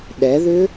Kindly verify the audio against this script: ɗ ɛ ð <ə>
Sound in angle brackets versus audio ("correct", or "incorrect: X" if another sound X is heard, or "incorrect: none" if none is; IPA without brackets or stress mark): incorrect: ʏ